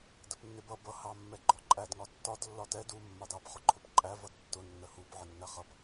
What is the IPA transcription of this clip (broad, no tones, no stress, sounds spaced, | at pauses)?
d ə p nː ɪ b ʌ b ʌ h ɑ mː ɛ ɡ͡ǃ ɔ ǃʼ æ d ŋ ɒ tː ɒ d lː ɒ t ɛ d u mː ɑ d ɑ p χ ʊ ǃʰ ʊ p ǃʼ æ v ʌ d tː ʊ nː ə h u p ʕ ə nː æ χ ʌ p